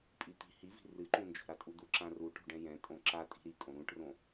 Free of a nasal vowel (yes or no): no